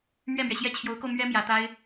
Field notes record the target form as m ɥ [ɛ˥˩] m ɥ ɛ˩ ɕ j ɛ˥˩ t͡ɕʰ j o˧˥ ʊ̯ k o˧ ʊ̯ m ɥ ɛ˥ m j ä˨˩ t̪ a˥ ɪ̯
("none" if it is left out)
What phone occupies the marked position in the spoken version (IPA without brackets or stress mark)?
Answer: ɛ˥˩